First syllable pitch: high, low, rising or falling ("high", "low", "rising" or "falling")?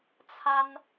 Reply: high